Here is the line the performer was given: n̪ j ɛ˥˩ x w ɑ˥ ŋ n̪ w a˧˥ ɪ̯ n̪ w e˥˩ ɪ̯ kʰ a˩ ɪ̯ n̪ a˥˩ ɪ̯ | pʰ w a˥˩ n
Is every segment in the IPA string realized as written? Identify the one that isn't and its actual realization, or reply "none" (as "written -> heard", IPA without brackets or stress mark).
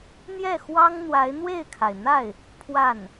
none